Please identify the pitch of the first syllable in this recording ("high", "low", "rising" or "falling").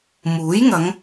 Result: rising